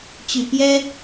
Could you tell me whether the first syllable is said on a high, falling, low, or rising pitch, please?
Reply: low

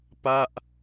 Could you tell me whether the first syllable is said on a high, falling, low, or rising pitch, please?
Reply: falling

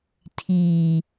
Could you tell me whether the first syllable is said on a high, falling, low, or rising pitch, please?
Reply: low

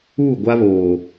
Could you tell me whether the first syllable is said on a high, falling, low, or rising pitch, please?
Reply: falling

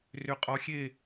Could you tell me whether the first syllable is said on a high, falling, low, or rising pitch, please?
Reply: rising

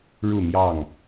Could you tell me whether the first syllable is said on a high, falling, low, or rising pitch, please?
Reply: falling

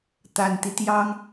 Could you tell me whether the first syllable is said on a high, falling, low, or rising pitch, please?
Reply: low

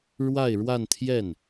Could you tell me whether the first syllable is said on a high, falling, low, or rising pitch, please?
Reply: falling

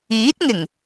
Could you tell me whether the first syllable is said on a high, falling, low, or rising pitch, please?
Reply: rising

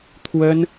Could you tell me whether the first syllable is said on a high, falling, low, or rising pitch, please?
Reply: high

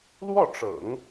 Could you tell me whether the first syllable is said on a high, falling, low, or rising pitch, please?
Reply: falling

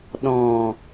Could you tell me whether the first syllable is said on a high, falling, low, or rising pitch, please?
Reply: low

